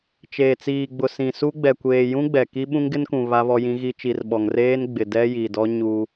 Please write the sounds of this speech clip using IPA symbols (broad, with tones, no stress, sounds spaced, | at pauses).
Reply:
t͡ʃ eː˨ t͡s iː˨ ɡ͡b ʊ˨ s ĩ˨ s u˦ ɡ͡b ɛ˨ kʷ eː˨ j ũ˦ ɡ͡b ɛ˨ k i˦ ɓ ũ˦ ŋ ɡ ɪ˦ n k ũ˨ β a˦ β ɔ˦ j ĩ˦ ɣ i˦ t͡ʃ i˨ r ɓ ɔ˨ ŋ r eː˦ n ɡ͡b ɪ˨ d ɛ˦ j i˨ d ɔ˦ ɲ u˦